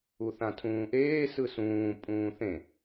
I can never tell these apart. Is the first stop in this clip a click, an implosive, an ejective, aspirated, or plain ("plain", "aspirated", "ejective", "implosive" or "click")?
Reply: aspirated